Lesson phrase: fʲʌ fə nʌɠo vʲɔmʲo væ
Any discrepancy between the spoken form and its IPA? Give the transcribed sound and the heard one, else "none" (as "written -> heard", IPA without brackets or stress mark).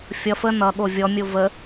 æ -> ə